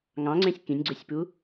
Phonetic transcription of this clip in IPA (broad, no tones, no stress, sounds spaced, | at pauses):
ŋ ɑ̃ ŋ͡ǀ ẽ sʲ k ĩ nʲ ɡ͡ǀ œ sʲ p u